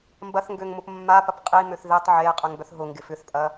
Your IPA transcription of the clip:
m b ɐ θ ŋ ɡ ø ŋ m ʊ p mː a p ɐ p qʼ i m ø θ ð ɪ tˤ ʕ e qʼ ʏ ŋ b œ θ ɦ ʊ ŋ ɡ ɪ f ʏ θ pʼ ɐ

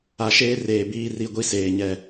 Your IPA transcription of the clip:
a˨ ʃ eː˦ r eː˨ b iː˦ r i˦ ɡʷ i˦ s eː˨ ɲ ɛ˦˨

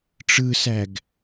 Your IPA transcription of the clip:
ʈ͡ʂ ɯ s æ ɡ

